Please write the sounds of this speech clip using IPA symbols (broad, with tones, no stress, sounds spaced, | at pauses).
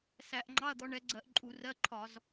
s æ˧˩˧ ʔ ŋ͡ǃ ɑ˧˥˧ ɐ̯ d̪ ɔ˨˦ ɳ ɛ˨˦ ɡ͡ǀ ɜ˧˩˧ ʔ ǃʼ u˧˩˧ r ɜ˧˥˧ ǃʰ ɒ˧˩˧ z